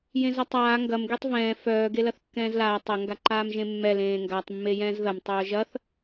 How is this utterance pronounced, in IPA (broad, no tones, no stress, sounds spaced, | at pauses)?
j ẽ z ɐ tˤ aː ŋ ɡ ɐ m ɡ y tˤ v ɛ̃ː f œː ɡ e l ɐ θ kː ɛ̃ː z l aː tˤ ɐ ŋ ɡ a ǃ aː m ʒ ẽ mː ɛ l ẽː ŋ ɡ a tˤ mː e j ɛ̃ː z ð ɐ m tˤ œː ʒ ɐ θ